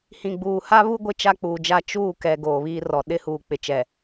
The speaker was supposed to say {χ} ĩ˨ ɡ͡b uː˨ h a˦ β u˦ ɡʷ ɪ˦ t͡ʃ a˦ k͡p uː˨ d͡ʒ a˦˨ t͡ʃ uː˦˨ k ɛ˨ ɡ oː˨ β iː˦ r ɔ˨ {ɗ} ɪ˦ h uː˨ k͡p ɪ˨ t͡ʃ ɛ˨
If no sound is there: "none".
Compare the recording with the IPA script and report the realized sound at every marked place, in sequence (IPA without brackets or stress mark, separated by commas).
h, ɗ